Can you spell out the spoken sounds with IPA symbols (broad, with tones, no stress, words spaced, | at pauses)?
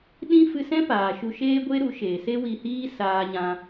ɗĩ˦ fɨ˧sɛ̃˦paː˨ ʃu˧ʃeː˦ɡʷe˦ɾu˨˦ ʃe˨se˦wi˧hiː˦ saː˧ɲã˧